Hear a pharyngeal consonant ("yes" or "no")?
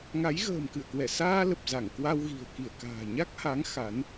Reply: no